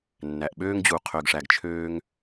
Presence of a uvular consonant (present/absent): present